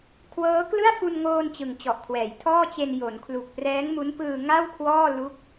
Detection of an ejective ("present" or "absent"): absent